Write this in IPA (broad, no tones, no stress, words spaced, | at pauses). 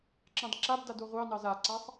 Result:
ǁɑ̃dǁabdad oʁʷɑnɑz aǀasˤ